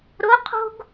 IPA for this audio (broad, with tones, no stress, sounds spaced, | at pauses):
ɾ o˧˥ qʰ o̤˥ ɡ